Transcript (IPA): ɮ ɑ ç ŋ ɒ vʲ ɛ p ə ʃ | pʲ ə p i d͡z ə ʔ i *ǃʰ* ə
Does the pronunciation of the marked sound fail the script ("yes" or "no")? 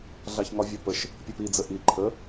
no